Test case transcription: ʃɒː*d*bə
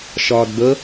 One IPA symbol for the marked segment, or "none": d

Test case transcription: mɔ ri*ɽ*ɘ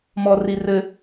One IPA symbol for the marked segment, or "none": r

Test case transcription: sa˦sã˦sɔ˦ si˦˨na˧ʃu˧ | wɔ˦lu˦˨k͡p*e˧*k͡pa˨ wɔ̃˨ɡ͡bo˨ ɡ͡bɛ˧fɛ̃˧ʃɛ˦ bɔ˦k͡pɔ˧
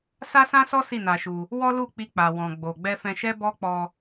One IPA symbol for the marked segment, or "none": i˧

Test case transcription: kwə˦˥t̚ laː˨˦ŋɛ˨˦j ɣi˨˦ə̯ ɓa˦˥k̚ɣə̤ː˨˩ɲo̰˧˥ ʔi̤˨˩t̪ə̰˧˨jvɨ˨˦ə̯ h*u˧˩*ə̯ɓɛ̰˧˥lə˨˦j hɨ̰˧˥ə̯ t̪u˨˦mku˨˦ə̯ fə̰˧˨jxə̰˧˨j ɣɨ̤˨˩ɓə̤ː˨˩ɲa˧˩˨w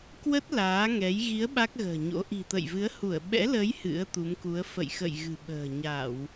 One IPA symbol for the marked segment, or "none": u˧˩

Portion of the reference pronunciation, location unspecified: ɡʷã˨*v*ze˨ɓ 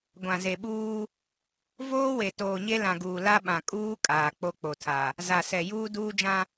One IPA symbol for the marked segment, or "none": none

